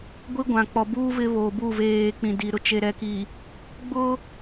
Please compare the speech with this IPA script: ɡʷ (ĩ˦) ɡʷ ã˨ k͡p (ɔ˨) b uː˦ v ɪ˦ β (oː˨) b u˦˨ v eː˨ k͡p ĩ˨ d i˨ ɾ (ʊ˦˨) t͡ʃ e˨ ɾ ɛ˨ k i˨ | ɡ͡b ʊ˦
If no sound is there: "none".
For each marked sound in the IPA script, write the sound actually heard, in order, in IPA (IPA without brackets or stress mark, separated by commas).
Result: i˦, ɔ˨, oː˨, ʊ˨